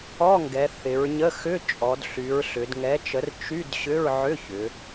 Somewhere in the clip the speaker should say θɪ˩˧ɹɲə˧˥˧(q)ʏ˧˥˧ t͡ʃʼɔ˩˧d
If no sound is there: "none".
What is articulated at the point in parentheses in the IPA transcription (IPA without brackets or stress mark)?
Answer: x